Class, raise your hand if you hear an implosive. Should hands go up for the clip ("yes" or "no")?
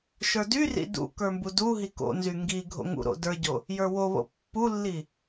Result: no